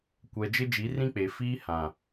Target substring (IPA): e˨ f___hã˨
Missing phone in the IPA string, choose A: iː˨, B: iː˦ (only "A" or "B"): B